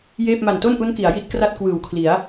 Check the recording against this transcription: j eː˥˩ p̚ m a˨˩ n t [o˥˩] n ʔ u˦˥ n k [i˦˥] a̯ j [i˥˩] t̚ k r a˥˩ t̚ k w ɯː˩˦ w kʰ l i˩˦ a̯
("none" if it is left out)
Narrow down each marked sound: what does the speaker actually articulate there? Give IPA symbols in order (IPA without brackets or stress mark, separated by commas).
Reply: o˥˩, i˩˦, i˥˩